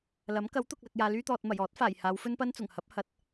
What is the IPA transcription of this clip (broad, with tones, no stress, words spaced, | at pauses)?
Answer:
lɐ˨˥m kɐ˨˥wt̪ʊ˨k̚lɐ˨k̚ jaː˧lyː˥t̪ɔː˧t̚ mɐ˨˩jɔː˨˥t̚faː˨˩j haː˨˧wfɵ˥npɐ˥n t͡sʊ˨˩ŋhɐ˨˥p̚ hɐ˨˥t̚